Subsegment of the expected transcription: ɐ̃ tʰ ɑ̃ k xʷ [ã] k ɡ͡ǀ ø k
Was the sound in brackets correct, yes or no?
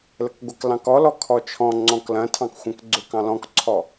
no